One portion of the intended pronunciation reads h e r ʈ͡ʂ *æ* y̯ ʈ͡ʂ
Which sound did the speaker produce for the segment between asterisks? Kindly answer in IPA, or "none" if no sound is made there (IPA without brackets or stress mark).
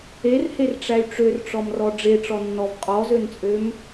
æ